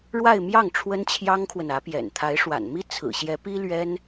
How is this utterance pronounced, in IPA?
ɻ w a˥˧ ɪ̯ m j ɑ˥˩ ŋ ʈ͡ʂʰ w ə˥ n t͡ɕʰ j ɑ˥ ŋ kʰ w ə˨ n ä˧˥ p j ɛ̰˨˩ n t̪ʰ a˧˥ ɪ̯ ʂ w a̰˨˩ n m i˥ t͡sʰ ɹ̩˨˩ ɕ j ɛ˧˥ p i˥ l ɥ ɛ˥ n

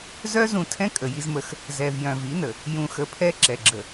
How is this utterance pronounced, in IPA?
z œ˦ z ũ˨ tʰ ɛ̃˦ kʼ ə˨ j i˦ z m ə˦ x | z ɛ˨ v j œ̃˨ v i˨˦ n ə˨ | j ũ˨ x ə˨ pʰ ɛ˦ ǁ ɛ˨ ɡ͡ǁ ə˨

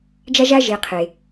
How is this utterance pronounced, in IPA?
d͡ʒ a˥ ʒ a˥ ʒ e˨ qʰ e˩

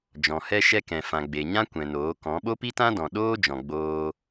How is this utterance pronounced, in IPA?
d͡ʒ ɔ̃˨ h ɛ˧ ʃ ɛ˧ k ɛ̃˨ f ã˨ ɡ͡b e˨ ɲ ã˦ kʷ ɛ̃˨ n oː˨˦ k ɔ̃˨˦ ɓ o˦ p i˦ t ã˦ d ɔ̃˨ ɗ oː˦ d͡ʒ ɔ̃˨ ɡ͡b oː˧

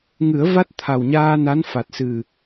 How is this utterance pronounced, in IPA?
ŋ ɨ˨˩˦ ə̯ v a˦˥ t̚ t̪ʰ a˨˩ w ɲ aː˧ n a˧˥ n f a˨˩ t̚ s ɨ˨˩

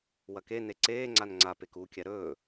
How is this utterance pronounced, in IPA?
w ɐ k e n e ǀ eː ŋ͡ǀ a n ŋ͡ǀ a p e k u kʲ a ɾ ɵː

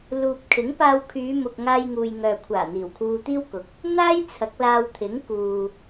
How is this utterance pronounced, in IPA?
l uː˨ p̚ kʰ ɪ˨˥ ŋ p aː˧ w kʰ yː˨˧ m ʊ˨ k̚ ŋ aː˧ j ŋ uː˨ j ŋ œː˨ kʷʰ aː˨˩ n̪ iː˨˩ w kʰ uː˧ t̪ iː˥ w k ʊ˨˥ k̚ | n̪ aː˥ j t͡sʰ ɐ˨˥ k̚ l aː˧ w t̪ʰ ɪ˨˥ ŋ k uː˨

